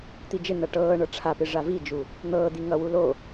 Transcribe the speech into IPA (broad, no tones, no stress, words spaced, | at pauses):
t̪id͡ʒɪn̪ʌ ʈɤː ɳɤʈ͡ʂʰapɪ ʐavid͡ʒu | n̪ɤː d̪iŋʌwu lo